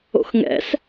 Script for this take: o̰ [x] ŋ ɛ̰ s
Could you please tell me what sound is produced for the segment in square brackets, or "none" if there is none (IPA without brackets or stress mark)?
x